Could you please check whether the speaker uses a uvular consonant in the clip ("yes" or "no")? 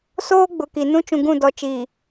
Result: no